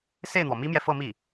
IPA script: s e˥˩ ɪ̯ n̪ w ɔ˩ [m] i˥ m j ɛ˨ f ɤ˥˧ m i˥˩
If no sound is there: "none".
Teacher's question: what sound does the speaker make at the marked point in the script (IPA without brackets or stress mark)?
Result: m